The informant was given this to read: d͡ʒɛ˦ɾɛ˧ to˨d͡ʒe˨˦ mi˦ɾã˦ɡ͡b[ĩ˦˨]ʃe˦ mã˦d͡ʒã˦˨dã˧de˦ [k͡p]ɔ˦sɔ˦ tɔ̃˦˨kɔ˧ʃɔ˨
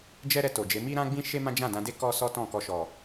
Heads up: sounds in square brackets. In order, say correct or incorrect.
incorrect, incorrect

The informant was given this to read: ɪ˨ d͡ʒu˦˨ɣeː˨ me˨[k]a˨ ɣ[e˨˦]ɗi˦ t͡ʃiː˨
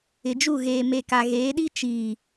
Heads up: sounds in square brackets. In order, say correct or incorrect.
correct, incorrect

